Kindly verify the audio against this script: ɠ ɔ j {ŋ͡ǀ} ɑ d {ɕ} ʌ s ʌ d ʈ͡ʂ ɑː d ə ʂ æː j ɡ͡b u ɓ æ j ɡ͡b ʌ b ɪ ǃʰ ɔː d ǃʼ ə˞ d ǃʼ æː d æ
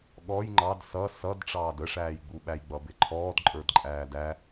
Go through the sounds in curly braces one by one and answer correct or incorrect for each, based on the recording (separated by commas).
incorrect, incorrect